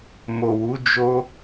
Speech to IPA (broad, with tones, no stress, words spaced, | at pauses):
mo˨wu˨˦ d͡ʒo˦